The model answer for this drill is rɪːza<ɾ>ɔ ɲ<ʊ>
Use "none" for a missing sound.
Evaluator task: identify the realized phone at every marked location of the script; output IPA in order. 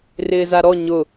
ɾ, ʊ

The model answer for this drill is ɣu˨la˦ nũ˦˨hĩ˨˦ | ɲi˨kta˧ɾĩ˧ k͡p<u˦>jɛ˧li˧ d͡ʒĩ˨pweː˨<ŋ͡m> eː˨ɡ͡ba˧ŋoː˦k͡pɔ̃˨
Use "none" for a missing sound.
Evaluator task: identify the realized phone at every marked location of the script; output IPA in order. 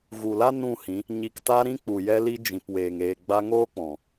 u˨, ŋ

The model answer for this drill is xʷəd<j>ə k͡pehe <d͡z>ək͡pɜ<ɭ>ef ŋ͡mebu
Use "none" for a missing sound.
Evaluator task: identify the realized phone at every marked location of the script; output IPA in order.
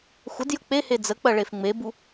j, d͡z, ɭ

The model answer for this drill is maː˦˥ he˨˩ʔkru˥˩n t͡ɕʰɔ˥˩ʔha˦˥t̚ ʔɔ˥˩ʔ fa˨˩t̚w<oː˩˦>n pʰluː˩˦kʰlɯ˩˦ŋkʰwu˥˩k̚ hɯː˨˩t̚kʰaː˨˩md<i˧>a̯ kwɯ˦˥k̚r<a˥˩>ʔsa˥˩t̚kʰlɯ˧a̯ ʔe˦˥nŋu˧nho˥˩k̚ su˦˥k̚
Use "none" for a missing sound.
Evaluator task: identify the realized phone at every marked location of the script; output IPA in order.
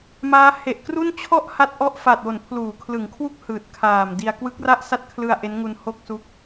o˩˦, i˧, a˥˩

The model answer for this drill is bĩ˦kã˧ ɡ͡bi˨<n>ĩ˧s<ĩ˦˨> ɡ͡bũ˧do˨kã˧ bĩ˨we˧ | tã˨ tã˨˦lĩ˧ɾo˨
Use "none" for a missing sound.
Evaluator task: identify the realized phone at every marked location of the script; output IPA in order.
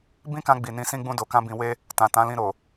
n, ĩ˦

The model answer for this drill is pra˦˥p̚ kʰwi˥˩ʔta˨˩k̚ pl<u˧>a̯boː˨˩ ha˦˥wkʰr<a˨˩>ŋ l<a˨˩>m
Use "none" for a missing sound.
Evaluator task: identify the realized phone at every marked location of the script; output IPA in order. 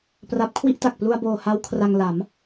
u˧, a˧, a˩˦

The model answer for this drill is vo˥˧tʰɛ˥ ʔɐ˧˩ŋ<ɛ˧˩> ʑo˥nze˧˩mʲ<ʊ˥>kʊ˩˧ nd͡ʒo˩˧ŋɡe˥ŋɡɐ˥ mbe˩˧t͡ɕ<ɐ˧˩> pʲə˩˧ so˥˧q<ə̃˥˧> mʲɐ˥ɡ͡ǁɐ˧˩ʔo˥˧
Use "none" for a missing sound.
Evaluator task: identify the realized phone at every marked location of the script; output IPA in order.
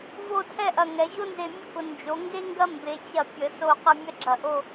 ɛ˩˧, ʊ˥, ɐ˧˩, ə˥˧

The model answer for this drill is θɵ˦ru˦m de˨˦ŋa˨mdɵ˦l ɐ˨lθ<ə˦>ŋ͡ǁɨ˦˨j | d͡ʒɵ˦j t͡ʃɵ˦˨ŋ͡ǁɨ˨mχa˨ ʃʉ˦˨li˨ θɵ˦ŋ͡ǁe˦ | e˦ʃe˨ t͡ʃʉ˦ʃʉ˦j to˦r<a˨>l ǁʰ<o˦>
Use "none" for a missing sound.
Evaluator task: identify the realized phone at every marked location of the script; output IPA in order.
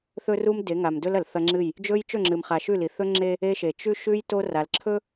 ɐ˦, a˨, ɵ˦

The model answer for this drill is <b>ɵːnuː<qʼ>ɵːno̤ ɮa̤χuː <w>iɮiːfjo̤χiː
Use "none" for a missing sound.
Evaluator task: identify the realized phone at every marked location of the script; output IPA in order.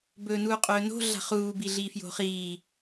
b, qʼ, b

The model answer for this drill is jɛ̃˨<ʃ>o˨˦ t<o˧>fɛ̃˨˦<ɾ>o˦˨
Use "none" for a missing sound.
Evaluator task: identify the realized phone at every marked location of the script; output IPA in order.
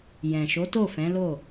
ʃ, o˦˨, l

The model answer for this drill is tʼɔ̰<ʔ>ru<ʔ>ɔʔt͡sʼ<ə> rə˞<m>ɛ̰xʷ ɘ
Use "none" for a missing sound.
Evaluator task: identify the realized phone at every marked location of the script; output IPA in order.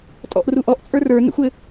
ʔ, ʔ, ə˞, n

